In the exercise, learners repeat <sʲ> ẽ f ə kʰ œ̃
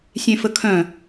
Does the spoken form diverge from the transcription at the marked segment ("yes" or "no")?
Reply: no